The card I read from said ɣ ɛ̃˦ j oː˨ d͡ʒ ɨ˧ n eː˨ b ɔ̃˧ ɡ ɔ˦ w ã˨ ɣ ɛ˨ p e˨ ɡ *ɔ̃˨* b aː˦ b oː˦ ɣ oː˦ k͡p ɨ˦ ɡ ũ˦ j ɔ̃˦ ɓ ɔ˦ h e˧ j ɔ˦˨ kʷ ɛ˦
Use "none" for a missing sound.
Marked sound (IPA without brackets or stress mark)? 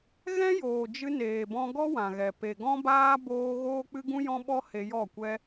ɔ̃˦